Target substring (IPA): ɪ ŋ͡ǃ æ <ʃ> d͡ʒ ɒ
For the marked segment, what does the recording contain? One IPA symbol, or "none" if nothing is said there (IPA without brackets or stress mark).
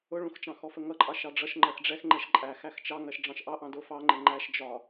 ʃ